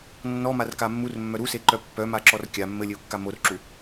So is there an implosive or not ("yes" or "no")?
no